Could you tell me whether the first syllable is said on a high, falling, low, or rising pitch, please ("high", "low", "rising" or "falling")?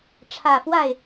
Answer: low